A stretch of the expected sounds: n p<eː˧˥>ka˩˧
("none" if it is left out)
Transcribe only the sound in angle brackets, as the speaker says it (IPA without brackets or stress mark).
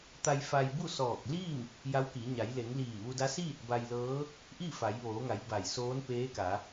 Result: eː˧˥